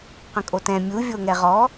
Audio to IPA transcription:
q ə̃ kʼ o t ɛ̃ mʲ u vʲ o ŋ ɛ ʁ ɔ

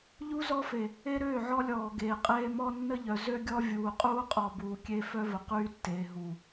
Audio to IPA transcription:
ʎ u˦ z ɔ˦ f e˨ | e˦ ɾ øː˦˨ ʕ ɔ˦ lʲ ɔː˨ ɡ eː˨ qʼ eː˦ m ɔ˦ nː ə˦ ʎ œ˨ z ø˦ ɡʲ ɔ˦ vʲ uː˨ qʼ uː˦ qʼ ɔ˨ b uː˨ kʲ e˦ f œ˦ v ə˨ q yː˦ tː eː˨ ɦ u˨

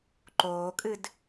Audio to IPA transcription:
ǃ oː kʼ ɨ d

